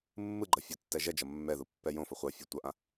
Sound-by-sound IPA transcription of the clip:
mː ɯ ɡ͡ǃ ʌ fʲ o tː ɛ ʒ ɛ d͡ʒ ʌ mː ɛ ð u pː ɛ j õ f ʌ χʷ ʌ fʲ u tʷ ʌ ʔ ã

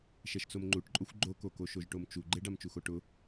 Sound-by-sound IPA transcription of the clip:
ʃ ɛ ʃ t͡s o m ŋ͡ǃ u ʈ ǃʼ o xʷ ɡ͡ǃ o k o k o ʃ o ʒ ʈ o m t͡ʃ u ɡ͡ǃ e ɖ a m t͡ʃ u x o ʈ ʊ

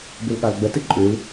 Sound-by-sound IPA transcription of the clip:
b ɨ l ɠ a l ɡ͡b ə t ɨ ǃʼ ʉ l

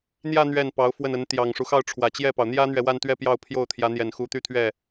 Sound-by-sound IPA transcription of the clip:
n̪ j ä˥˧ n̪ ɥ ɛ˥˩ n p ɑ˧˥ ʊ̯ f w ə˥˩ n ə˧˥ n t̪ j ɑ˨˩ ŋ ʂ u˦ x ɑ˥˩ ʊ̯ ʈ͡ʂʰ w ä˨˩ t͡ɕ j ɛ˥˩ p ɑ˩ ʊ̯ n̪ j ä˥ n̪ ɥ ɛ˨ w a˥˧ n t̪ ɥ ɛ˥˧ p j ɑ˥˧ ʊ̯ pʰ j o˥˩ ʊ̯ t̪ʰ j ä˧˥ n̪ j ɛ˨˩ n x u˧˥ t̪ y˥˧ t̪ʰ ɥ ɛ˥˩

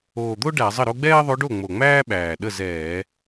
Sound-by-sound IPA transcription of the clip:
oː˨˩ d̪ o˥ ɖ æ˧˩˧ zˤ ə˥˩ ɾ o˥ ɡ͡b ɛː˥ ðˤ o˧˥ ɖ o˥˩ ŋ͡m o˨˩ ŋ͡m æː˥ ɓ æː˨˩ ɗ ə˥˩ z ɛː˧˩˧

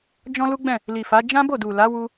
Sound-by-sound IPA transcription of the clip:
d͡ʒ ɔ̃˦ l u˦ ɡ͡b ɛ̃˦˨ | l i˨ f a˨˦ d͡ʒ ã˦ b o˦˨ d u˨ l a˨˦ w u˧

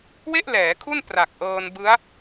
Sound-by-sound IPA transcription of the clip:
w e˥˩ ʔ l ɛː˩˦ kʰ u˥˩ n p r a˨˩ k̚ ʔ ɤː˧ n b ɯ˦˥ a̯

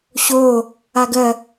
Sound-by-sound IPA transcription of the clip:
ɕ o | a ɡ ɜ

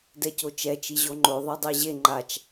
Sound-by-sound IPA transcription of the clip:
d ɛ c o t͡ʃ ɛ t͡ʃ i ʑ o ŋ͡ǃ o ðˤ a dˤ e ʑ e ŋ͡ǃ a t͡ʃ

